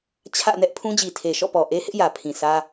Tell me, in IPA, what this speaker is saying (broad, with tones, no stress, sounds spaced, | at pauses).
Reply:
t͡ɕʰ ä̰˦˨ n ɛ˦ ʔ pʰ ũ˦ d͡ʑ i˨ tʰ e˨ ʃ ɔ̰˦˨ p ɔ˨ ʔ e˦ h ɪ˦ ʔ j ä˨ pʰ ĩ˨ s ä˦